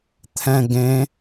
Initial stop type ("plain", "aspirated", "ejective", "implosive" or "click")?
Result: aspirated